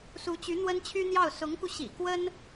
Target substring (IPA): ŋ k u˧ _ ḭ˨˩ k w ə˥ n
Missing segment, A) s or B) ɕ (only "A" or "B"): B